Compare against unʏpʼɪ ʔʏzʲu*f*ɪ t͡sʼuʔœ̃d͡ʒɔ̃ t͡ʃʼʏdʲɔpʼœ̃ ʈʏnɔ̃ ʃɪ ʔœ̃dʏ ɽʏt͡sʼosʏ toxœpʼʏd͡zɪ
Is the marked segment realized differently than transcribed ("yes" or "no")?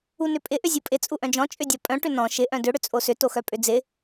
yes